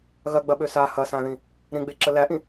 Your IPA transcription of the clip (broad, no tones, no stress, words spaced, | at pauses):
ɣɐɡ͡bɐɓø sa hɐsãðĩ | ɾĩɡ͡beǁə læʔĩ